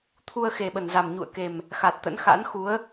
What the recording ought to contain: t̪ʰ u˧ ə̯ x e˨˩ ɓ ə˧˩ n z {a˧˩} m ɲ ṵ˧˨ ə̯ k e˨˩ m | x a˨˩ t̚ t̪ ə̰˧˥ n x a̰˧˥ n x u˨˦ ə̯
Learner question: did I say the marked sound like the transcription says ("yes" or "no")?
no